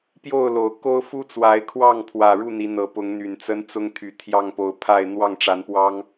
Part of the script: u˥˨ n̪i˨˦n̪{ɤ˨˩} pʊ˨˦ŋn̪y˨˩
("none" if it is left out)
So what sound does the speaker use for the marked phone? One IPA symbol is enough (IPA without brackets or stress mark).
ɤ˨˩